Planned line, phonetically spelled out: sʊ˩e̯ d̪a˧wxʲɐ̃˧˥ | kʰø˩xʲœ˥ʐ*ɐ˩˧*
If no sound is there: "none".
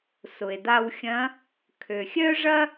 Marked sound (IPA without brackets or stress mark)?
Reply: ɐ˥